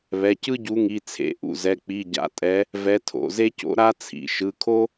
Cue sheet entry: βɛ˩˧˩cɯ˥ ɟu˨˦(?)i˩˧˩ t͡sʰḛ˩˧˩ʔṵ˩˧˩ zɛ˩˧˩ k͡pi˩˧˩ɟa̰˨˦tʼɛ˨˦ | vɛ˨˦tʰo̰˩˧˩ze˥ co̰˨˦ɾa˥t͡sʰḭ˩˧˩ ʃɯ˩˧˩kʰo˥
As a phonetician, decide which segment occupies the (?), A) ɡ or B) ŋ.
B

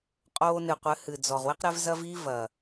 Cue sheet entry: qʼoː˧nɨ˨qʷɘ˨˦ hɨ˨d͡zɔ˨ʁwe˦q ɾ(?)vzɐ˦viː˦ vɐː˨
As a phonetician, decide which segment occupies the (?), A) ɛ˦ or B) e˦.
A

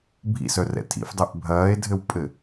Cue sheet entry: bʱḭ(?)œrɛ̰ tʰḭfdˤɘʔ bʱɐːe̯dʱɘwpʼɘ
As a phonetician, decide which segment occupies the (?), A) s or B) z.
A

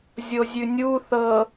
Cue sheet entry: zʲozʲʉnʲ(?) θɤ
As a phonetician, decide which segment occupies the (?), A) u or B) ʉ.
A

